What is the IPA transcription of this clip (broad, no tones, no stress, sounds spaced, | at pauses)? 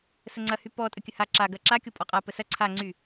s ə ŋ͡ǀ ɐ h y p ɔ tʼ ə kʲ ə h a ǁ a ɡ ɐ ǁ a kʲ o pʼ ɔ qʼ a p ə s ɐ ǀʰ a ŋ͡ǀ y